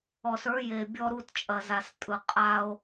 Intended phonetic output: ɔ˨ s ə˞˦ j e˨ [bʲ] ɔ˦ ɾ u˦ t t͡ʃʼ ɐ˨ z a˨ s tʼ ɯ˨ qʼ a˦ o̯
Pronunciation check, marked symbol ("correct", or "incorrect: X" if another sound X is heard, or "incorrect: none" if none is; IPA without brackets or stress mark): correct